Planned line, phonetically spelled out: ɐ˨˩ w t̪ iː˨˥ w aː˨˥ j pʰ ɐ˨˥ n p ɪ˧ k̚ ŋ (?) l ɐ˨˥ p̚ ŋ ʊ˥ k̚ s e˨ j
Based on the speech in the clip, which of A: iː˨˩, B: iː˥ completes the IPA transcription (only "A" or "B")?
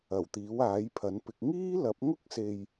B